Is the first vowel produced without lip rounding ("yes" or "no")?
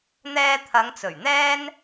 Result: yes